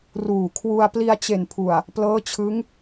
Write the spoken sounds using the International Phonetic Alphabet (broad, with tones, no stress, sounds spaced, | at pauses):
r uː˨˩ kʰ w u˧ a̯ p l i˧ a̯ t͡ɕ e˨˩ n pʰ u˨˩ a̯ | p l ɤː˦˥ t͡ɕʰ ɯ˦˥ ŋ